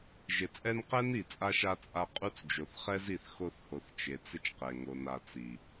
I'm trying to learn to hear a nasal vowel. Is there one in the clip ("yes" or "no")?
no